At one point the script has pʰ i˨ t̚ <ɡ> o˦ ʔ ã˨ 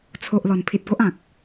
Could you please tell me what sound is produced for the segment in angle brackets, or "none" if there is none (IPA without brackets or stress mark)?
ɡ